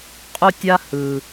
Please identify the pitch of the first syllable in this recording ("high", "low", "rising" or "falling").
high